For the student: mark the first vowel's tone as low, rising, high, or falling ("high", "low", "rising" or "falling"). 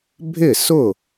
falling